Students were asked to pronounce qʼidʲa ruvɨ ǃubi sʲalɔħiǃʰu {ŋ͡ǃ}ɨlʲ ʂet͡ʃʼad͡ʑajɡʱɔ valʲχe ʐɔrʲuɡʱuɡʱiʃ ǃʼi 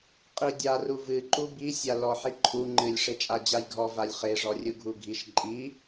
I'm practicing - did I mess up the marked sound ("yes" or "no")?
no